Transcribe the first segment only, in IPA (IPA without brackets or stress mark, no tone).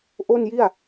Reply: ʔ